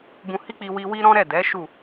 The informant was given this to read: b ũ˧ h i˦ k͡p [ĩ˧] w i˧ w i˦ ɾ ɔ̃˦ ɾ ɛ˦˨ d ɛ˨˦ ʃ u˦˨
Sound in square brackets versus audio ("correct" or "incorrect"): incorrect